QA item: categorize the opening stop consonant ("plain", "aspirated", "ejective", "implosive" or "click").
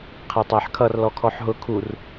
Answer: aspirated